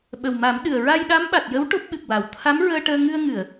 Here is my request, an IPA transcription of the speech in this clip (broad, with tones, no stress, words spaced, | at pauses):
ɓə˨˩wma˨˩˦mɗɨ˨˩ə̯ ɹa˧j ɗa˧˥mɓa˨˩t̚jə˧˥w ʈo˦˥p̚ɓɨ˨˩k̚wa˨˩˨w t̪ʰa˧˥mɹəː˧ ʈəː˧ ŋɨ˧ə̯ ŋɨ˨˩˨ə̯